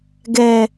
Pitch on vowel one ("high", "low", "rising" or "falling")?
low